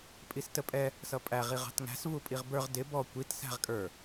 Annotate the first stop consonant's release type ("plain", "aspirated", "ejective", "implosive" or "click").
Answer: ejective